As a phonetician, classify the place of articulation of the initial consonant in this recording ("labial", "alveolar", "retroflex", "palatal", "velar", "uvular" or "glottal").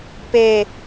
labial